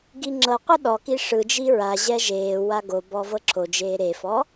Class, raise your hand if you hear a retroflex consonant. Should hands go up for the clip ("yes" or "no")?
yes